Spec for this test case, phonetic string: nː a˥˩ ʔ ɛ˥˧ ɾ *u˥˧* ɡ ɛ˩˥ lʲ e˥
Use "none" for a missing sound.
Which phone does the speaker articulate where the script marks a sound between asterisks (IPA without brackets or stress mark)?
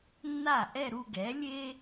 u˥˧